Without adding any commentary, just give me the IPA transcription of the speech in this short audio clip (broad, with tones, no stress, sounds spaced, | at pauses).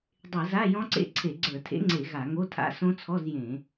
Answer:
dˤ e˧˩˧ z a˧˥˧ j ɔ̃˦˥ ǀ ḛ˦˥ ǀʰ e˧˩˧ ɡ͡ǀ ə˞˧˩˧ tʰ ḛ˦˥ ŋ͡ǀ e˧˩˧ ɣ a˧˩˧ ŋ o˧˥˧ tʰ a̰˦˥ s õ˦˥ t͡sʰ ɔ˧˥˧ z j ẽ˧˩˧